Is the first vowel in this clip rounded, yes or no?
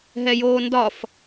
no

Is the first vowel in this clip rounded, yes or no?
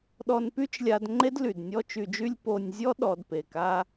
yes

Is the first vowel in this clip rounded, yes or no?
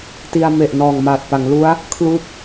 no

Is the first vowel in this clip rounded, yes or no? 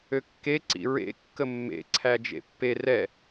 yes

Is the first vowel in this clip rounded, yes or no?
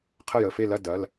no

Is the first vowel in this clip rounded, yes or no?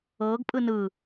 no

